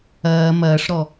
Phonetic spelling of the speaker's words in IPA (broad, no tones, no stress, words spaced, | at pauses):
ɐː mɐːʂɾɔ